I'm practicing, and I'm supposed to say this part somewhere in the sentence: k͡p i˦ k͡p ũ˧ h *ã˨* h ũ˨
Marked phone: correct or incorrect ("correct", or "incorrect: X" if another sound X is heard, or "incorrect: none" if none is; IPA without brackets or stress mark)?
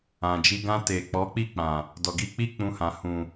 correct